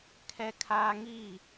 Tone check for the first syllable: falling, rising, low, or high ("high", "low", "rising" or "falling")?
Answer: high